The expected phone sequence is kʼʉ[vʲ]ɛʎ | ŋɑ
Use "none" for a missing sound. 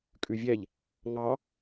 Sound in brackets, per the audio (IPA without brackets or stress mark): vʲ